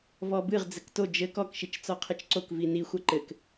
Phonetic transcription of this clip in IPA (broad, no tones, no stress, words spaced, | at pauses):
vɔbɨʁ d͡zɘkto d͡ʒɘ kɔkʃit͡ʃ t͡sɔqʰɨt͡ʃǀokvi nixʷɐ ǃɘk